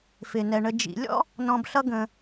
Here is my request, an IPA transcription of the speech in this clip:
f ɪ˩ n ɛ˩ ɳ ə˨ d͡ʒ ḭ˨ lʲ ɔ̰˥ | n ɔ̃˨ b ɬ ʌ˦ ɡ ə̃˨

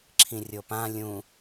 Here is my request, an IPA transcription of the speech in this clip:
ǁʰ ĩ rʲ o p ã lʲ ũ

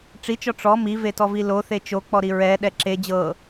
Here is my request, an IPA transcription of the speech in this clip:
ʈ͡ʂ i t͡ʃ ɔ ʈ͡ʂ ɔ m i v e t ɔ v i l o θ e t͡ʃ o k͡p ɔ ɾ i ɹ ɛ ɗ ɛ ǁ e d͡ʑ ɤ

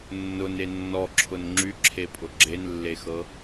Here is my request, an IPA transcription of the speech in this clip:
nː ʊ n e nː ɔ ǁʰ ʊ n ŋ͡ǁ y ǁʰ e pʼ ʊ ɡ͡ǁ e n lː e x ɤ

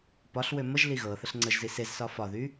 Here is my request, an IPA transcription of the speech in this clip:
p ɒ ɬ w ø m ə ʒ l i ɣ ɤ θ ə ɬ ŋ͡ǀ ə ʒ z i s e z s ɒ f ɒ ð y

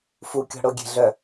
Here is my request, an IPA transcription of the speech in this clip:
f u kʲ ɔ̤ ɽ o ɡʲ e̤ ɮ œ

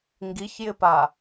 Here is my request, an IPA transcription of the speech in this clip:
ŋ ɡ i ç j ɪ p a

